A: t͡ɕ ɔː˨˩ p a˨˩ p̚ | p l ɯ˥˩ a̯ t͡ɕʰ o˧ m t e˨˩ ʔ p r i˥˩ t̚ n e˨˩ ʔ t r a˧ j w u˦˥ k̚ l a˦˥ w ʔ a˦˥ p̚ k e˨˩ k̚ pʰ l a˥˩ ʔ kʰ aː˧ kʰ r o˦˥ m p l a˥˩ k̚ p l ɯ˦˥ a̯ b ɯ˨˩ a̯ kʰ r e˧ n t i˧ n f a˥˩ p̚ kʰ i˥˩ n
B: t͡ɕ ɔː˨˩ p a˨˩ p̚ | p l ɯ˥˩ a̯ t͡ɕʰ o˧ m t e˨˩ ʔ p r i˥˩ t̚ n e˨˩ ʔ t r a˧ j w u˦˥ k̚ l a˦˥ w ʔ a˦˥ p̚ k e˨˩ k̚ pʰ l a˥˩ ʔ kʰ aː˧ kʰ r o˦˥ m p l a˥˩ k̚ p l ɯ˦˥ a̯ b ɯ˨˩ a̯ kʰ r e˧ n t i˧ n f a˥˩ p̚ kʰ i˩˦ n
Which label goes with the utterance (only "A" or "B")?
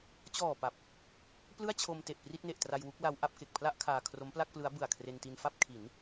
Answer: B